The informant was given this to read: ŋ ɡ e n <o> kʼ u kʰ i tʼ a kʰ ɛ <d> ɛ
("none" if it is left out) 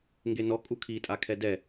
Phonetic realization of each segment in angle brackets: ɔ, d

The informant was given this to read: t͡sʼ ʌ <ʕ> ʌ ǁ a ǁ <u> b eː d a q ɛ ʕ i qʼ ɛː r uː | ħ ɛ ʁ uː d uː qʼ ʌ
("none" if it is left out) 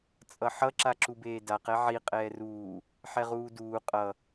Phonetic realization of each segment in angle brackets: ħ, u

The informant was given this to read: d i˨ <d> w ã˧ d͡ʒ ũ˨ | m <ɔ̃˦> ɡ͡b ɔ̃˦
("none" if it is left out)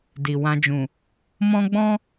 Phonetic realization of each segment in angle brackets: none, ɔ̃˦

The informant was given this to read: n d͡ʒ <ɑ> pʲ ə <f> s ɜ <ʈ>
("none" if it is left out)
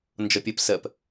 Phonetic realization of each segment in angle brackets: ɒ, p, p

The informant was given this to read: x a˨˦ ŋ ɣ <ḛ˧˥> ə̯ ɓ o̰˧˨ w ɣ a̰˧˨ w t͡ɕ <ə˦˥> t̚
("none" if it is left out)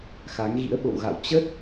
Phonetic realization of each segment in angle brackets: ḭ˧˥, ə˦˥

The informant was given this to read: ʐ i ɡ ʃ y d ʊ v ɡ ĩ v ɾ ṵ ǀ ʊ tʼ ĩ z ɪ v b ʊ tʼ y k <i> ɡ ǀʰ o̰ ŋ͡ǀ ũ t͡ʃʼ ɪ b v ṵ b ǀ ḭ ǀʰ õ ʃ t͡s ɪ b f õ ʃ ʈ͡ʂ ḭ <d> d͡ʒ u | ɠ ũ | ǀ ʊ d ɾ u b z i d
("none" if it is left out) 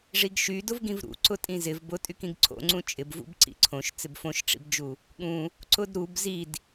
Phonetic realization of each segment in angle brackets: ĩ, b

